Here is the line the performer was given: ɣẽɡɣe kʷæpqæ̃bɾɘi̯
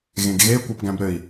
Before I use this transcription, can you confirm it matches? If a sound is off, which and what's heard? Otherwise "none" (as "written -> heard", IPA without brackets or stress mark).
q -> ɡ